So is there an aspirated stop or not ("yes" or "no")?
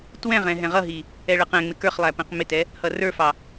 no